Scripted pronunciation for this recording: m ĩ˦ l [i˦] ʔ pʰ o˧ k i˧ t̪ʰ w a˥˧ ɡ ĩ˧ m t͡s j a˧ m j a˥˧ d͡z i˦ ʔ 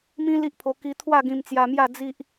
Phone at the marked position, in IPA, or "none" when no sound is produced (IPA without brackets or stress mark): i˦